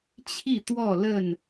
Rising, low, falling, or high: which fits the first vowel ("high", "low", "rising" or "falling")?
falling